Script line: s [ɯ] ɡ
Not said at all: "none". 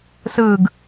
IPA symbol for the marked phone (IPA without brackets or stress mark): ɯː